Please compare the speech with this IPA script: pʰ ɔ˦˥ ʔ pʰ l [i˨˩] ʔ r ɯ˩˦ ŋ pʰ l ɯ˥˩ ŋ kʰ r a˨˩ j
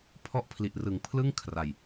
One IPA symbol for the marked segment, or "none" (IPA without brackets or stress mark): i˨˩